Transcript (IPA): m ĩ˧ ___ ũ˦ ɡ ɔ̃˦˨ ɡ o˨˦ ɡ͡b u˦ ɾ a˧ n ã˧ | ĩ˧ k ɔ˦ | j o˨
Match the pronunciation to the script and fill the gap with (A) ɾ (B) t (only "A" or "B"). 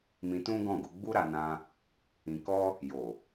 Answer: B